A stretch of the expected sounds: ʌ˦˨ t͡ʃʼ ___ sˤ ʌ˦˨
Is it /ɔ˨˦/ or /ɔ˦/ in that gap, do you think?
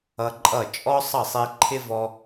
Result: ɔ˦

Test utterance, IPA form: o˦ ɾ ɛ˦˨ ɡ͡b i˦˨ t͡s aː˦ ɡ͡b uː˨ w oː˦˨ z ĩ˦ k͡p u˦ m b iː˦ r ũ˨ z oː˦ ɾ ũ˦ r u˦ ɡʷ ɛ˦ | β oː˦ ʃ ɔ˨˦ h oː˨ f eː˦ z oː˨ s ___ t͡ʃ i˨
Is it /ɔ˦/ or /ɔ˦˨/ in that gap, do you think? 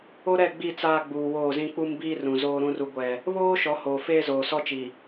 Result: ɔ˦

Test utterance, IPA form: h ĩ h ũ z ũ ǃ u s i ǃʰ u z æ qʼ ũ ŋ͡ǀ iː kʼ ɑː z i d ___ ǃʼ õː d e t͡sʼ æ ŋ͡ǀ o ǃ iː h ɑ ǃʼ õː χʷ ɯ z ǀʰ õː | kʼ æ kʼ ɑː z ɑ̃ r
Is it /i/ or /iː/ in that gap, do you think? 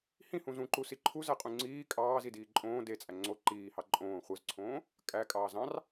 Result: iː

